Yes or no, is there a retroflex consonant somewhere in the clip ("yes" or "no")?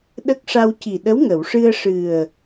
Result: yes